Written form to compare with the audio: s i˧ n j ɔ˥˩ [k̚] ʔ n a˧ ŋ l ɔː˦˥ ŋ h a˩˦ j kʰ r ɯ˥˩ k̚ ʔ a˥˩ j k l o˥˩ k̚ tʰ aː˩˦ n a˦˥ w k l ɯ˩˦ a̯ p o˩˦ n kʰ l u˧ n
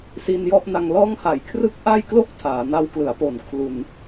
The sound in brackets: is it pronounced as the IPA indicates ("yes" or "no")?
no